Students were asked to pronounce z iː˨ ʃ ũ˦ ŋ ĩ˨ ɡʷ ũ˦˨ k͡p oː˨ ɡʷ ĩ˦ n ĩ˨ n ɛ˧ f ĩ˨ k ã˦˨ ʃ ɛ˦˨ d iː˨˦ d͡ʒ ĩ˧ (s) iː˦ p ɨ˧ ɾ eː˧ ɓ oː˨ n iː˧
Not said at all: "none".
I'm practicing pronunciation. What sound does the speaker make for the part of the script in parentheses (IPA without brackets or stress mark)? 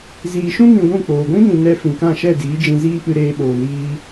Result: z